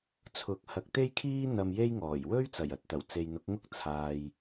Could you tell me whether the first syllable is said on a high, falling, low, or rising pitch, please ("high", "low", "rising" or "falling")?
rising